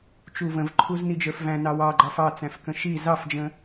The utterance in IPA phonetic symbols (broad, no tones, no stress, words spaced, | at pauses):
t͡ʃu və̃vǃʰuznid͡ʒə˞f væ̃nɑ wɑɡ͡ǃɑf ɑt͡sæ̃fkə̃ ʃi zɑfd͡ʒə̃